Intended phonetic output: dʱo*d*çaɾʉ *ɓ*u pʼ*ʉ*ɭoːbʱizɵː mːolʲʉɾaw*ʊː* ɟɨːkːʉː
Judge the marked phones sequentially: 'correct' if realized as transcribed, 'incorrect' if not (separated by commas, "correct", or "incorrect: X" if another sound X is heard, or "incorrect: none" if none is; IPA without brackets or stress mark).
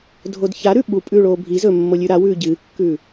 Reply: correct, correct, incorrect: ʉː, incorrect: ʉː